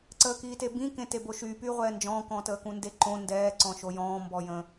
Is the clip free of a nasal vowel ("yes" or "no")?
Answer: no